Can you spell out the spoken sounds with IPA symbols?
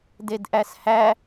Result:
d e d ʔ æ s h æ

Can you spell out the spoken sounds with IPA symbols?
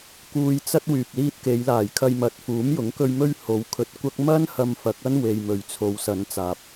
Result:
k uː˧ j t͡s ɐ˥ t̚ w yː˨ p̚ l iː˧ t̚ k e˨˧ j l aː˨˩ j kʰ ɐ˧ j m ɐ˨ t̚ f uː˨˥ m j ʊ˨˥ ŋ k ɵ˧ ɥ m ɵ˥ ɥ h o˨˧ w kʰ ɵ˧ t̚ kʷ ɐ˥ k̚ m ɐ˥ n h ɐ˧ m f ɐ˨˥ k̚ ɐ˥ n w e˨ j m ɵ˨˩ ɥ t͡sʰ o˨˧ w s ɐ˨˧ n t͡s aː˨ p̚

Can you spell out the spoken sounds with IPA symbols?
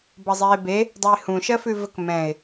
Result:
b ʌ zˤ eː b e | dˤ u ɪ̯ h ũ ʃ ɜ f ʉ v ə k m ɛ̃ ɪ̯

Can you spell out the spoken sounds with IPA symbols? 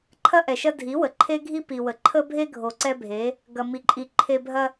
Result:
ǃʰ ɐ˦ ʔ ɛ˨ ʃ ɐ˦ dʱ i˨˦ w ə˨ ǃʰ e˦ ɡʱ i˦ p i˨ w ə˨ ǃʰ ə˦ bʱ e˦ ɡʱ o˨ ǀ ɛ˦ bʱ e˨˦ | ɡ ɐ˨ m i˨ ǃʼ i˨ ǃʰ e˨ bʱ ɐ˦

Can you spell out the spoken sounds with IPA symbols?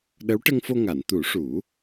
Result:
ɗ ə˧˥ w ʈ ə˧ ŋ f o˧ ŋ a˨˩˨ n t̪ u˨˩˦ ʂ u˨˩˦

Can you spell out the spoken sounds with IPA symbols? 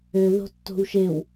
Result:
ø ð o̤ tː o̤ w ʃ e w

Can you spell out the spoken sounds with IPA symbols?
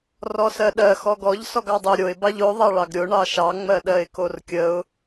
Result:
r ɔ s ɜ ɗ ɜ x ɔ ɡ ɔ ʎ s ɔ ɡ ɑ dˤ o ɾʲ o ɪ̯ b ɑ ʎ o ðˤ ɑ ɭ ɑ ɡ ɾʲ o ɳ ɑ ʃ ɑ ŋ͡m ɜ ɗ ɜ ɪ̯ k o r kʲ ə ʊ̯

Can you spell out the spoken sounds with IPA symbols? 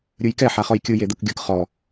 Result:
ɾʲ ɯ j k ɛ ħ a χ ɔ j kʲ ɯ j e d̪ ɯ k ɡʲ ɯ k χ ɔ

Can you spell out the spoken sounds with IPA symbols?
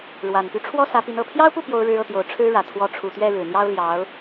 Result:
ɻ w a˨˩ n p y˧˥ ʈ͡ʂʰ w ɔ˥ s ä˧˥ p i˧˥ n ɤ˨˩ pʰ j ɑ˥ ʊ̯ p u˥˩ p j o˥ ʊ̯ ɻ ɻ̩˥ ɤ˥˩ t̪ j o˧˥ ʊ̯ ʈ͡ʂʰ ɻ̩˥ ɻ ä˨˩ t̪ʰ w ɔ˧˥ ʈ͡ʂʰ u˨˩ t̪ ɥ ɛ˥˩ ɻ ɻ̩˨˩ n̪ j ɑ˥ ʊ̯ l j ɑ˧˥ ʊ̯

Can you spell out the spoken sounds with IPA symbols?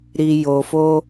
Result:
ɾ i˨ j o˨ f o˧

